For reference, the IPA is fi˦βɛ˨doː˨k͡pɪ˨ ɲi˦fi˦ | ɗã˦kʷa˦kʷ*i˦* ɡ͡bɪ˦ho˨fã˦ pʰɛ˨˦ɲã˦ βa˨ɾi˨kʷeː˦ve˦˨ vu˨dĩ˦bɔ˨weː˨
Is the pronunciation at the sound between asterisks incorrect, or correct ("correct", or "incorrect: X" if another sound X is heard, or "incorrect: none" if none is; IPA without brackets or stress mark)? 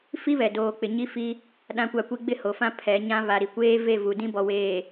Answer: correct